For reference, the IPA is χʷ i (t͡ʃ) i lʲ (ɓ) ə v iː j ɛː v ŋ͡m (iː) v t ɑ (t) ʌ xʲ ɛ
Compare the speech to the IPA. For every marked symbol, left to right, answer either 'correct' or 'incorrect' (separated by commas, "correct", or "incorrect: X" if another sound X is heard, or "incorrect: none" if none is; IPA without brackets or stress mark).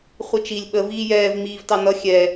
correct, correct, correct, incorrect: n